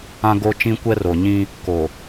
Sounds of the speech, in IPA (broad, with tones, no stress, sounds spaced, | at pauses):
ã˦ ɡ o˦ t͡ʃ ĩ˦ kʷ ɛ˦ r o˨ ɲ ĩ˦ | k o˨